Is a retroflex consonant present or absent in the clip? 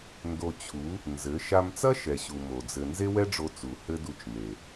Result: present